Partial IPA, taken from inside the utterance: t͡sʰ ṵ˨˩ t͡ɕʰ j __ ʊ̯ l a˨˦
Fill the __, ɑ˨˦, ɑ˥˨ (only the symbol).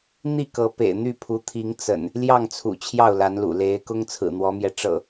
ɑ˥˨